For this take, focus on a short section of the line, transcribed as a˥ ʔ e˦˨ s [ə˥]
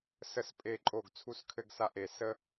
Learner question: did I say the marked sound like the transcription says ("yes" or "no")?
yes